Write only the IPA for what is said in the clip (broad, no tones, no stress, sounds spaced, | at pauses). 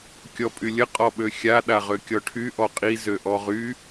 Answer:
kʲ ɔ pʼ y lʲ ə qʼ ɔ ɓ ø xʲ a ɗ a ʁ ø kʲ ɔ ʈʰ y ʔ ɔ qʼ i z ø ʔ ɔ ʁ y